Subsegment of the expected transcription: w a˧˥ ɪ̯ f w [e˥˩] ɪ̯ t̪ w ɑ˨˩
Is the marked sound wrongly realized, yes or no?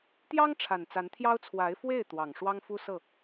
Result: no